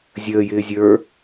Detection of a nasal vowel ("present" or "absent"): absent